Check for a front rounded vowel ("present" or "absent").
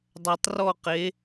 absent